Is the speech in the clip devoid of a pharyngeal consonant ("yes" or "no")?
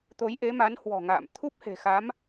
yes